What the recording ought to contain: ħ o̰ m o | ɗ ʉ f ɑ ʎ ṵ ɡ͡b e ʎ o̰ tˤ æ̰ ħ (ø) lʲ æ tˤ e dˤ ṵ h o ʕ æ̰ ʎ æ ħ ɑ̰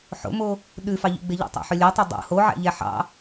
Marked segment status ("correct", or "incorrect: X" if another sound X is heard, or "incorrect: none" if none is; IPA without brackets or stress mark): correct